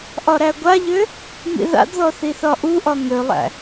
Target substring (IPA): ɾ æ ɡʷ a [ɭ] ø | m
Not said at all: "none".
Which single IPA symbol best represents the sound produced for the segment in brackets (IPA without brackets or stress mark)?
ʎ